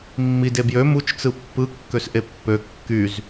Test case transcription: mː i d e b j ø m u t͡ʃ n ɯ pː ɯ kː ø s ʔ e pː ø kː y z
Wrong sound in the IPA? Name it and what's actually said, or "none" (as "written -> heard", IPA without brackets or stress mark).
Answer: n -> t͡s